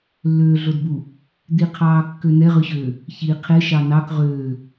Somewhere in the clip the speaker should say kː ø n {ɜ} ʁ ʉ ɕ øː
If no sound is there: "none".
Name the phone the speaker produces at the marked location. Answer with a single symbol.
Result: ɛ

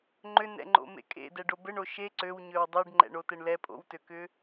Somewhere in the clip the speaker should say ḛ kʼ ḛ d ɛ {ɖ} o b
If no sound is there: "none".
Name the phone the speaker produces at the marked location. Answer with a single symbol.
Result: ɖ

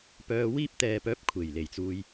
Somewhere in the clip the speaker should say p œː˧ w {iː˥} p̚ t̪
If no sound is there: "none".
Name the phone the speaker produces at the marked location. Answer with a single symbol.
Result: iː˥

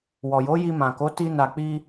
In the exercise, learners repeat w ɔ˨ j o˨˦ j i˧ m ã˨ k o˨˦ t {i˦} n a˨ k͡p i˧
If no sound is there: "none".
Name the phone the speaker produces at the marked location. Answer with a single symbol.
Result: i˧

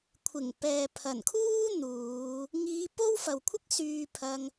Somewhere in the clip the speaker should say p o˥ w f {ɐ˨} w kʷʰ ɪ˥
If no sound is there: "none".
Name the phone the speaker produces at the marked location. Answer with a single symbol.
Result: ɐ˨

